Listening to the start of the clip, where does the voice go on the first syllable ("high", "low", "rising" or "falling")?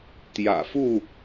low